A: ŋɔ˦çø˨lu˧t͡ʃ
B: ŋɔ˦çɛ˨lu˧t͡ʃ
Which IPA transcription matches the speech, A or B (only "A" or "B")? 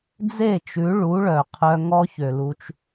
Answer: A